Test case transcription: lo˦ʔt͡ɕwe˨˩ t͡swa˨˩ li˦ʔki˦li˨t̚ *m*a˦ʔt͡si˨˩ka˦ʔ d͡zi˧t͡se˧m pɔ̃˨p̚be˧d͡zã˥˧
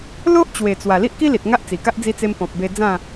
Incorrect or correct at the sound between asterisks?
incorrect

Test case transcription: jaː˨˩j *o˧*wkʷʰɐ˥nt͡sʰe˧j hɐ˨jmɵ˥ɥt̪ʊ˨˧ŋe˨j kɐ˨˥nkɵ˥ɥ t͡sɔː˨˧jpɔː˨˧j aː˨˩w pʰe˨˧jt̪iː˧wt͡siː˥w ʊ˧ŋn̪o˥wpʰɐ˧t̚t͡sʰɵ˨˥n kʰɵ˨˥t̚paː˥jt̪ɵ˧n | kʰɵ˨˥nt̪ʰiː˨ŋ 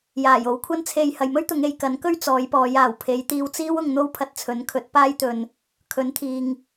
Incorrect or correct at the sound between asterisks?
incorrect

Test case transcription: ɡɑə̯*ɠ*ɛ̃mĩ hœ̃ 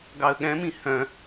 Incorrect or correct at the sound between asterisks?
correct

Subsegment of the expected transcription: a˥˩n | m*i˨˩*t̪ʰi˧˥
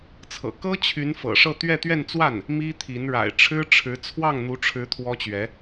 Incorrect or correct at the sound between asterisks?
incorrect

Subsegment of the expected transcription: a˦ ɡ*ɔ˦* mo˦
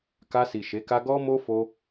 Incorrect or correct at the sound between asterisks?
correct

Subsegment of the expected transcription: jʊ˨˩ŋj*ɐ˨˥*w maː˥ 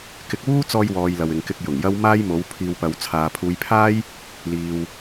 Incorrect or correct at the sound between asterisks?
incorrect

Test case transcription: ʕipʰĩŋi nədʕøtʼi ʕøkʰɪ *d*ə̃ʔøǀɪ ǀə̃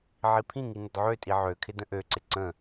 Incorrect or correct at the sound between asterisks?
correct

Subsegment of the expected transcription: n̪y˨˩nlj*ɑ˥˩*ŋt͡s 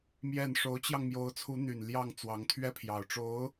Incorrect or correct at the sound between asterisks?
correct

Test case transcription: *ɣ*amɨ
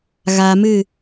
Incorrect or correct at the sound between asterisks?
correct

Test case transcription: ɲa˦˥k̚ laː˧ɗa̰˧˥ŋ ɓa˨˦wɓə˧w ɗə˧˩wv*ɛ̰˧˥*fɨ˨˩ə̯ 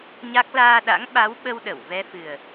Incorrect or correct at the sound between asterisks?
incorrect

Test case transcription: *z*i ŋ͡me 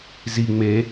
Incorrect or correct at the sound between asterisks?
correct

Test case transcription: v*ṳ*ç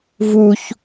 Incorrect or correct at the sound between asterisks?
incorrect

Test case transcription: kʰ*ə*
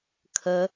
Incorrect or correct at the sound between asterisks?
correct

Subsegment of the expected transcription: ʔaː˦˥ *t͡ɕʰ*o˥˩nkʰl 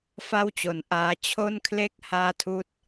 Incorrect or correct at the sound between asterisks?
correct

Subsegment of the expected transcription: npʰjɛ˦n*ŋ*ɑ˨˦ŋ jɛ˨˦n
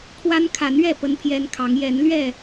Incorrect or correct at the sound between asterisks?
incorrect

